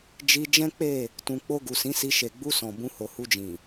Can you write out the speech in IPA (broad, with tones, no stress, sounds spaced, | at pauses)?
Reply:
d͡ʒ i˧ d͡ʒ ɛ̃˦ k͡p e˦˨ | t ũ˨ k͡p o˧ ɡ u˨ s ĩ˨˦ s i˧ ʃ e˨ ɡ͡b u˧ s ɔ̃˨ b ũ˧ h o˨ h u˧ d͡ʒ ĩ˨